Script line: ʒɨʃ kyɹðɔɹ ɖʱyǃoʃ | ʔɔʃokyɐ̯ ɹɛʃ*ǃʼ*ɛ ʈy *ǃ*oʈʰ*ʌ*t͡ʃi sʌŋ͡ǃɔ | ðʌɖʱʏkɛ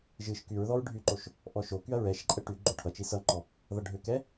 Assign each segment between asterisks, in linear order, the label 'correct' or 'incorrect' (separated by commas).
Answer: correct, incorrect, correct